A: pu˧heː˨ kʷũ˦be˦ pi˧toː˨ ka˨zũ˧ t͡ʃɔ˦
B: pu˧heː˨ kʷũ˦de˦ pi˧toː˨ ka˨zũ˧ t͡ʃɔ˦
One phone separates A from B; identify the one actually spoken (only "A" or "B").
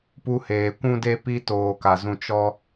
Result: B